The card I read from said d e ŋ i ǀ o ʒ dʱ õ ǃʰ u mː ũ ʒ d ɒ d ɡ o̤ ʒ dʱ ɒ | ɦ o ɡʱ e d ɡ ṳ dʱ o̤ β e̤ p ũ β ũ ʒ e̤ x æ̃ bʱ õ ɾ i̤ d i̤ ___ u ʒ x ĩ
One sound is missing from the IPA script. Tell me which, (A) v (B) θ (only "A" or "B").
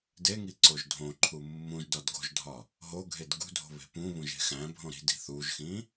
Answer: B